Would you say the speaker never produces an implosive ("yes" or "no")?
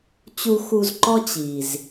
yes